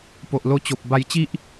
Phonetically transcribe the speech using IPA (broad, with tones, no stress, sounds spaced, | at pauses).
p o˨ ʔ l o˧ t͡ɕ o˨ p̚ b a˧ j t͡ɕ i˦ ʔ